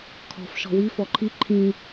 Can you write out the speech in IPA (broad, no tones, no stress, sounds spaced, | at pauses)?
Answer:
kʰ ɔ̤ f ʃ ɔ̤ w i f ɔ ǃʰ i ǃʰ ĩ